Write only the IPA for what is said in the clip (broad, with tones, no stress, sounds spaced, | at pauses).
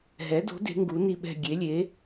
ɦ ɛ˩˥ d o̤˩˥ d e̤˩˥ ŋ ɡ u˩˥ n i˦˨ ɓ ɛ̤˦˨ ɡʲ e˩˥ lʲ e˩˥